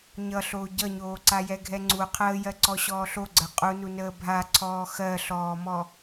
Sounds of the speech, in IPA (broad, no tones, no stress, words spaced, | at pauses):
ɲʌɬoː ɟʌɲoːǀajɛ ɡʱɛŋ͡ǀu qʰəːjɜǀɔ ɕɔːɬoɡ͡ǀɜ qʼunu nəːbʱa ǀʰɔːxɜɬɔːmɔ